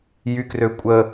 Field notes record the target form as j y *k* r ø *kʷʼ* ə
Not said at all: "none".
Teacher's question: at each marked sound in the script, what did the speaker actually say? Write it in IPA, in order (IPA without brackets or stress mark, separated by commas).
k, kʷʼ